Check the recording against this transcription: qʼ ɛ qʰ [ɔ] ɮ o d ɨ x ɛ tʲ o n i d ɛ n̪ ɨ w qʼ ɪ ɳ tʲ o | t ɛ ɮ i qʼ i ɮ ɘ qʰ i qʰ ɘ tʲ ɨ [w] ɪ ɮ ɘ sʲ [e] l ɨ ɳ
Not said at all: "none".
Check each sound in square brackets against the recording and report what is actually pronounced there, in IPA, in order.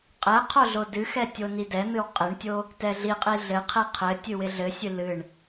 o, w, ɨ

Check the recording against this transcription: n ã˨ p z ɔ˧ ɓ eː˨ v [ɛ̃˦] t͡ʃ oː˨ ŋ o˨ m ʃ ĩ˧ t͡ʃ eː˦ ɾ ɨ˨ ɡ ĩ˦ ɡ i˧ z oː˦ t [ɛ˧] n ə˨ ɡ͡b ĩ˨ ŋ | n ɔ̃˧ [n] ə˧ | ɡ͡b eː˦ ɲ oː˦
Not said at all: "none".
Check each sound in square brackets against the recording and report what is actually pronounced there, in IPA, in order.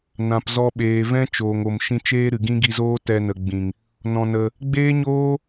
ɛ̃˦, ɛ˧, n

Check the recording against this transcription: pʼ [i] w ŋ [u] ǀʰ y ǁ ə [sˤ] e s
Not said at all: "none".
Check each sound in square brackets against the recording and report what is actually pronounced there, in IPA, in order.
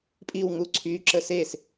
i, u, s

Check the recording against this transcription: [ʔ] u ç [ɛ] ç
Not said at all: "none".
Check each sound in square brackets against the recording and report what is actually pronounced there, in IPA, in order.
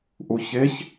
ʔ, e

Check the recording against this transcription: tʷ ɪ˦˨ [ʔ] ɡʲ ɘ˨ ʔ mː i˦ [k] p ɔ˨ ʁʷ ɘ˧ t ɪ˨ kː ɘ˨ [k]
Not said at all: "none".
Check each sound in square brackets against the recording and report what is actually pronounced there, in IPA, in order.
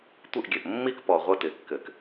ʔ, k, k

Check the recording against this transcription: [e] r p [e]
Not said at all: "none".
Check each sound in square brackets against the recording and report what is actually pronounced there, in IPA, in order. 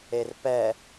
e, ɛ

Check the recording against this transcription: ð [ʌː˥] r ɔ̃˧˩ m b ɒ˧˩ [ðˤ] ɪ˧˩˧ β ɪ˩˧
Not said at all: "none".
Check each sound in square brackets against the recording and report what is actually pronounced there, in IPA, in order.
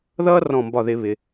ʌː˥, ð

